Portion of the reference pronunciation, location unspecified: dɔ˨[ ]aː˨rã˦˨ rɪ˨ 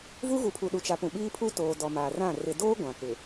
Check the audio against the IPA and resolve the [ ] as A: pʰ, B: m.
B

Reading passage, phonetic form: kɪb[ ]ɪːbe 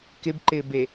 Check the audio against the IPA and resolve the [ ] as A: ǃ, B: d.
A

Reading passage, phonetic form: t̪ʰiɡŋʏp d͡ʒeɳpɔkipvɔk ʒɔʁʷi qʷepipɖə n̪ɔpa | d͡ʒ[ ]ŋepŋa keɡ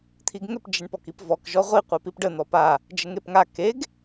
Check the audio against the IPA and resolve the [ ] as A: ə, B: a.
A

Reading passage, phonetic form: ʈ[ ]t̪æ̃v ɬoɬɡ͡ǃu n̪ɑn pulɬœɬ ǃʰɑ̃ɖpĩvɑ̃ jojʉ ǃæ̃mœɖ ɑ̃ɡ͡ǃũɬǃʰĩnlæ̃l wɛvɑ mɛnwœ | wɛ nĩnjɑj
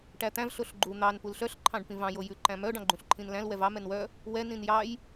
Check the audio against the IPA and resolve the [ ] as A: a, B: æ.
B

